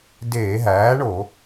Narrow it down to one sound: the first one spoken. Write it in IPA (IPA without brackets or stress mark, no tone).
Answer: d